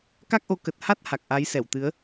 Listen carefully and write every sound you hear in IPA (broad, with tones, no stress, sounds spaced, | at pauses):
k a˦˥ k̚ ʔ o˨˦ k ə˨˩ t̚ h a˦˥ t̚ h a˨˩ k̚ ʔ a˨˦ j s ɛ˧˩ w t̪ ɨ˨˦ ə̯